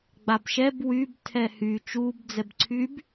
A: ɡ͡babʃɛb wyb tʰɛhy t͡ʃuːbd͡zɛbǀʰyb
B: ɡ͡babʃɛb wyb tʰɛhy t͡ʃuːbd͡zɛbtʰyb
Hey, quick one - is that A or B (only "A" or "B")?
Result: A